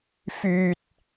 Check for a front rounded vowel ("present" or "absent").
present